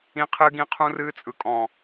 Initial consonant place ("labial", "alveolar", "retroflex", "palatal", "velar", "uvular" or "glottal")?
uvular